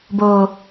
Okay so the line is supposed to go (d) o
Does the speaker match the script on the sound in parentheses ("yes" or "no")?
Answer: no